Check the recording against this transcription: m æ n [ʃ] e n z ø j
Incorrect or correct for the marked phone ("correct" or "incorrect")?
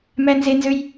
incorrect